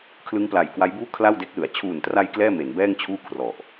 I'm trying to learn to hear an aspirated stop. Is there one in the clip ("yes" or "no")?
yes